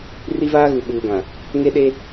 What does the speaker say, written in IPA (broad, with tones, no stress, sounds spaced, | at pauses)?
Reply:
r i˦ v aː˦ ɣ u˨ ɓ uː˨ ɡ ã˨ | ŋ e˦ ɗ e˦